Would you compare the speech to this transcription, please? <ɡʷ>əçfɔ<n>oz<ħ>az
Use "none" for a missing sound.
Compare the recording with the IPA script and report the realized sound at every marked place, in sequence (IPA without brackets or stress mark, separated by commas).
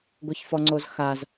ɡʷ, ŋ͡ǀ, x